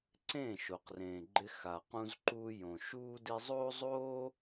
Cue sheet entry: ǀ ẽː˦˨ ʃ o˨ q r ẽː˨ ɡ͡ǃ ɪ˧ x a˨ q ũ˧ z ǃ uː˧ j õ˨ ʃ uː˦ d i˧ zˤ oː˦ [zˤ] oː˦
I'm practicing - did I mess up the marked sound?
no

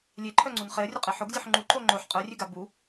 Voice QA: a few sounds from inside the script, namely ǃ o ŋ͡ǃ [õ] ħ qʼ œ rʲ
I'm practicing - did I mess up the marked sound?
yes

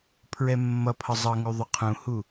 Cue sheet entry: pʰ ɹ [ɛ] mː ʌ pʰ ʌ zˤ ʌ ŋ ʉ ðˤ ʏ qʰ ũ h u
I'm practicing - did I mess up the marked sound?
no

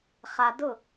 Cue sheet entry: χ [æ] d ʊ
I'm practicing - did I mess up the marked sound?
yes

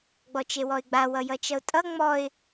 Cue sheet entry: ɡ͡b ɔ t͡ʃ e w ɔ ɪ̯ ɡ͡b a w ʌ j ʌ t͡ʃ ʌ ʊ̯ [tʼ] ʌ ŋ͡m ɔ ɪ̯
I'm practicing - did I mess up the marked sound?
no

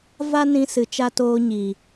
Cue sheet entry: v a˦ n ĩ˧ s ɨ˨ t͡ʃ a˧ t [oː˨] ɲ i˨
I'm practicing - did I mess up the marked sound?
yes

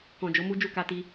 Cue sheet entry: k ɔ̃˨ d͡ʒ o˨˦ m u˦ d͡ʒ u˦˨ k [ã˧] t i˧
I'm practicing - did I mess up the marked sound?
yes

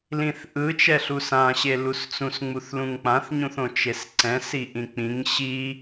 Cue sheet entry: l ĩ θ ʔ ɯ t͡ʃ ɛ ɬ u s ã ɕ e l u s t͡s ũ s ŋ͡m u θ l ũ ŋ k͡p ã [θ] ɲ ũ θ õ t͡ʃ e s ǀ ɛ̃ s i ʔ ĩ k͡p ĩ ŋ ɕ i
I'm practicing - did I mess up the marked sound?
no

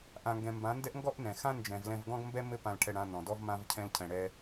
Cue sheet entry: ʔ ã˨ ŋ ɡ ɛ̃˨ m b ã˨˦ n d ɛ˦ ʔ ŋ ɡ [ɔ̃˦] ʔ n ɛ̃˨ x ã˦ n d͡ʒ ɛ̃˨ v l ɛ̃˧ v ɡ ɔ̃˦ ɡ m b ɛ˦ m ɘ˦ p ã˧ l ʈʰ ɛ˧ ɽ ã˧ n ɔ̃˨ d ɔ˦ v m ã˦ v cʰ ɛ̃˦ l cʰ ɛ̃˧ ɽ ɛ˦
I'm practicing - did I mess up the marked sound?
yes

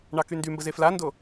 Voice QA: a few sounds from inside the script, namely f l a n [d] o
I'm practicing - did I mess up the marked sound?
no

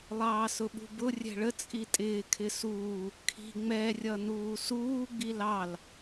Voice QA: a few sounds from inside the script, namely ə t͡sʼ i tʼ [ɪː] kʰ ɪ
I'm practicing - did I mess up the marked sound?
no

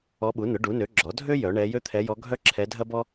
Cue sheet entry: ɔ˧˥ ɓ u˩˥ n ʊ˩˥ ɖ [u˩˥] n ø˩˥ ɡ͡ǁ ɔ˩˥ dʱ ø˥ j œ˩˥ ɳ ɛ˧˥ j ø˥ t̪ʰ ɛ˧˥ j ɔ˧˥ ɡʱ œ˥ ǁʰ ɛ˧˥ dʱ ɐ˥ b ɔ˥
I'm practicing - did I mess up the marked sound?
no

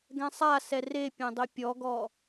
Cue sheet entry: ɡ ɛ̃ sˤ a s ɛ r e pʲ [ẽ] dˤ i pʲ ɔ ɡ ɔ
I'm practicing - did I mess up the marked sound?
no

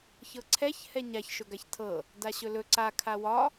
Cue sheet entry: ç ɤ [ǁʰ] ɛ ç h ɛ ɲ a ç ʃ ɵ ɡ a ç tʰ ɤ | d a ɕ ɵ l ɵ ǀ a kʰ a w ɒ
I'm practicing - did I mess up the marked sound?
yes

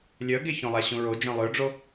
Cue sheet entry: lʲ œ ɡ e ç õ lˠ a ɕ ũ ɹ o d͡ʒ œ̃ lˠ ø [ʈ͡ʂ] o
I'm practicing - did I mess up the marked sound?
yes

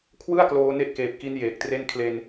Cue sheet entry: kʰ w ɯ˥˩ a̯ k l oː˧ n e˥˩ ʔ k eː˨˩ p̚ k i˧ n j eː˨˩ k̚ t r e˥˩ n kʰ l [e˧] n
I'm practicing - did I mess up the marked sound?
no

